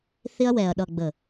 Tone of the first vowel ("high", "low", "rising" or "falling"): high